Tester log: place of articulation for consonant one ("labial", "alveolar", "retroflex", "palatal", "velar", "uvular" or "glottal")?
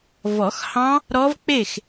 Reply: labial